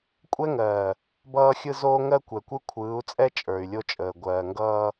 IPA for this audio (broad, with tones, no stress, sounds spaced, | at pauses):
kʷʼ ɛ˦ ŋ ɜː˨ | b ʌː˦ xʲ ɯ˦ z oː˦ ŋ ɜ˦ kʷ ɛ˨ kʷ ɯ˦ kʷʰ ɯː˨˦ u̯ t͡sʼ ɛ˦ t͡ʃʼ ə˞˨ y̯ lʲ o˦ t͡ʃʼ əː˨ ɡʷ ɜː˨ ŋ ɡ ʌː˦